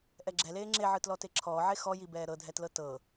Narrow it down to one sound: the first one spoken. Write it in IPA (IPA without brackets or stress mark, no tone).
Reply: ʔ